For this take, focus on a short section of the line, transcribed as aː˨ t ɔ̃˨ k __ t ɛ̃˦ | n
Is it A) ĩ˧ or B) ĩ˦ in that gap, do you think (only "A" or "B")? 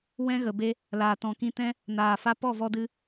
A